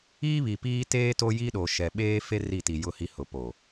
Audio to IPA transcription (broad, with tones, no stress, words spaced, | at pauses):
iː˦βi˨piː˦ teː˦ to˦ji˦ɗo˨ ʃɛ˨ɓeː˦fe˦ ri˦˨ti˨ jʊ˦hi˦ hʊ˨ po˨